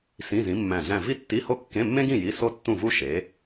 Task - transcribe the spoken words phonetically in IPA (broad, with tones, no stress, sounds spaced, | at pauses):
s ĩ˧˥˧ z ĩ˨˥ mː æ̃˧˩ ɮ æ̃˥˨ v i˥ tː i˧˥˧ h o˥ kː ẽ˧˥˧ mː ẽ˥ ɡ ĩ˥˨ j i˧˥˧ s o˥ tː ũ˥˨ v u˥ ʃ e˨˥